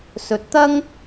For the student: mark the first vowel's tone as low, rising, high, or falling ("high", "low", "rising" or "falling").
rising